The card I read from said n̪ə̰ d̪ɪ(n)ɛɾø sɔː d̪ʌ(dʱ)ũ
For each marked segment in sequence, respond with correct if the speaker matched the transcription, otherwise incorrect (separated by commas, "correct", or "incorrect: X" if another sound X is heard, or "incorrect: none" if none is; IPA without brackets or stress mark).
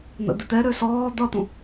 incorrect: t̪, incorrect: t̪